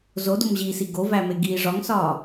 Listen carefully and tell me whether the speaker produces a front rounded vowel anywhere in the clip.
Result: no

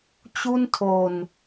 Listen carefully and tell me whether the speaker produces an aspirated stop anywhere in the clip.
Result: yes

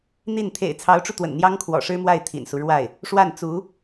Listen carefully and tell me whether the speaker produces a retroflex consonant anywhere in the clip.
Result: yes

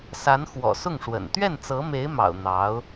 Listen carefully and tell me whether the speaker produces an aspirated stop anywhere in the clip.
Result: no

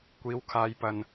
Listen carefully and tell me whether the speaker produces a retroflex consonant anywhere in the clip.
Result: no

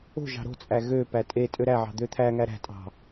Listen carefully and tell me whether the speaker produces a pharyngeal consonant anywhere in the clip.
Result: yes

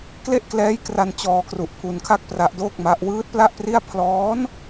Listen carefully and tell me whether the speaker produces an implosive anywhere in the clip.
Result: no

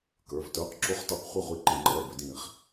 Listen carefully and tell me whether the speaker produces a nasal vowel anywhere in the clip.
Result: yes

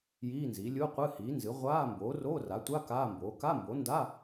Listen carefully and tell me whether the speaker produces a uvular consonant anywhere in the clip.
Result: yes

